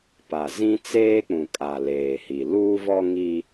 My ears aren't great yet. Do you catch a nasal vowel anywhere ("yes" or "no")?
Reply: yes